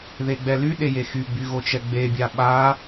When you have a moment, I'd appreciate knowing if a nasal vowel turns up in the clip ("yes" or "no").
no